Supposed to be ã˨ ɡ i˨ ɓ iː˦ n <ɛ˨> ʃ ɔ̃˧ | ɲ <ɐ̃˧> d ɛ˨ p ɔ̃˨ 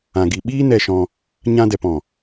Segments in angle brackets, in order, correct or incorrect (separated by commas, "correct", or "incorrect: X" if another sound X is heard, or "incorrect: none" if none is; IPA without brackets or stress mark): incorrect: ɛ˧, incorrect: ã˧